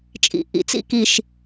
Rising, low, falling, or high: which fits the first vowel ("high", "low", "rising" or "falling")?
low